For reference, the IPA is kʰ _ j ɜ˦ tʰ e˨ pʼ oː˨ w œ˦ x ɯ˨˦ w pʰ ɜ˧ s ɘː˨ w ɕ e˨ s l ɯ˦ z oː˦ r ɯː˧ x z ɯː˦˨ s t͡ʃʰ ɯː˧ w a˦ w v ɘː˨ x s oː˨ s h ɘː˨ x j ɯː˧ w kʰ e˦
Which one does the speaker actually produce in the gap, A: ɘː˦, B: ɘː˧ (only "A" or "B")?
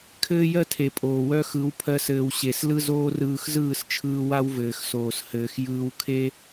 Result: A